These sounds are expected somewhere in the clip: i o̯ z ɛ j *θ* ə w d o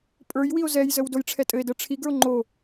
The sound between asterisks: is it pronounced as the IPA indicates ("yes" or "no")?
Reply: no